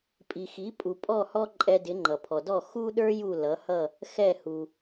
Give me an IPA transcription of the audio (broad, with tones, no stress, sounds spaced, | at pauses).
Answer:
pʼ i˩ x i˩˥ pʼ u˩ pʼ ɔ˥˩ h ɔ˥ ǃʼ ɛ˧ d ɪ˩˥ ŋ͡ǃ ʌ˩ pʰ ɔ˩ d ɔ˥˩ x u˥ ɗ ə˞˥ j u˥˩ l ʌ˩˥ h ʌ˥˩ | x ɛ˥˩ h u˩